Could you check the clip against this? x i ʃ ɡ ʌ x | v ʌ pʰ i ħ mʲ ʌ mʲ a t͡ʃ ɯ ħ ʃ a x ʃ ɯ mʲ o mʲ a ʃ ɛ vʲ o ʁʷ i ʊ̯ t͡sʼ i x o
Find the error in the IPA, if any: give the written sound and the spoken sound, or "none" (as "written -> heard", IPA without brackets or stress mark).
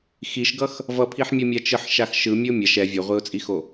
none